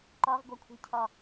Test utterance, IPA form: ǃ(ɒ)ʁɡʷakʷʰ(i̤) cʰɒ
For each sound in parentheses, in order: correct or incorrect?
correct, correct

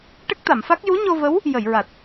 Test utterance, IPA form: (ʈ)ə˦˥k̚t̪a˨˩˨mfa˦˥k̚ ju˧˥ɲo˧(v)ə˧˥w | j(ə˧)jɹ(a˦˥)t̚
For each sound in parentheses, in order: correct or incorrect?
correct, correct, incorrect, incorrect

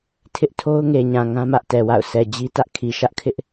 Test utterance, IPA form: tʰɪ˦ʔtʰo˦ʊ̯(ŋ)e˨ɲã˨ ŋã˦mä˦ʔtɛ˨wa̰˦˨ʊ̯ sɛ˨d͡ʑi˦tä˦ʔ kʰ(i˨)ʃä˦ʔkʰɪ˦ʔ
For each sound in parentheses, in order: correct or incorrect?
correct, correct

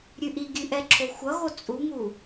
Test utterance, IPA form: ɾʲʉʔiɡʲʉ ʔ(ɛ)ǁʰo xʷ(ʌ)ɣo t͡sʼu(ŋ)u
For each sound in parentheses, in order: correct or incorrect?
correct, correct, correct

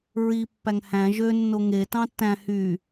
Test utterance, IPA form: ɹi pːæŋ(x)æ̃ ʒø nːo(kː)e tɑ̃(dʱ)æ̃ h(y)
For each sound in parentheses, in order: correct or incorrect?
incorrect, incorrect, incorrect, correct

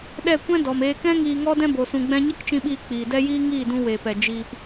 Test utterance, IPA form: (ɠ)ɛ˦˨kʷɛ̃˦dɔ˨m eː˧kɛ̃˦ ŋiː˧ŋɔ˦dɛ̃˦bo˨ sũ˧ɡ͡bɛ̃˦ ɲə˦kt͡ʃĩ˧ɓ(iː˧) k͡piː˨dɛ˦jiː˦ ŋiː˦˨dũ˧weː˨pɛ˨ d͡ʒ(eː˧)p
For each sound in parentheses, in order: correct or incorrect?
incorrect, correct, incorrect

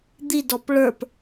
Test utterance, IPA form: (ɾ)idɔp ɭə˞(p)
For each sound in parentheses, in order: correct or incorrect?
incorrect, correct

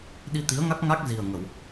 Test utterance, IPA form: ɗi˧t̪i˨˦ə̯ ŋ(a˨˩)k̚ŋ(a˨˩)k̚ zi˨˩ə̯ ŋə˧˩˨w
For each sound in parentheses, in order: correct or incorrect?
incorrect, incorrect

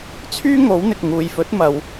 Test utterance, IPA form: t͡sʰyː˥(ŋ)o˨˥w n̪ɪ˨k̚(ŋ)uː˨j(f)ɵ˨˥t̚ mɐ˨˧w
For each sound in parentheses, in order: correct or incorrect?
correct, correct, correct

